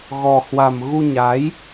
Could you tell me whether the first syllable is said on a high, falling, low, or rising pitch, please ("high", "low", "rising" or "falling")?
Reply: low